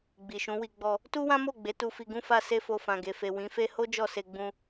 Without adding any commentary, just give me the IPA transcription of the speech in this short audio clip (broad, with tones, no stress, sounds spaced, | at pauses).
ɡ͡b i˨ ʃ ũ˨˦ w i˧ ɡ͡b ɔ˧ | t u˦ w ã˦ m o˦˨ ɡ͡b e˨˦ t u˧ f i˧ ɡ ũ˦ f a˦ s e˦ f o˧ f ã˨ ɡ e˨ f e˨ w ĩ˨˦ f e˦ h o˦ d͡ʒ ɔ˦˨ s e˧ ɡ͡b ũ˧